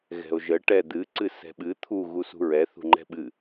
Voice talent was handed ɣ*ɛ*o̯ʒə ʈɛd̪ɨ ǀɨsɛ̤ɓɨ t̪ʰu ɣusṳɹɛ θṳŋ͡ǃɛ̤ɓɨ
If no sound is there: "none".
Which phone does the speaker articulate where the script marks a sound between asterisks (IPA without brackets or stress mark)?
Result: ɛ̤